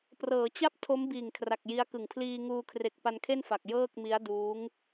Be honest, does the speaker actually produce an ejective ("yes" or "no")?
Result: no